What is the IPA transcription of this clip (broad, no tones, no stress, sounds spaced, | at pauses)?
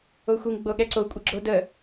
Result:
o xʷ i ŋ ɡ͡b o ɠ ɛ ǀ o kʷʼ ɘ ɡ͡ǁ o d ə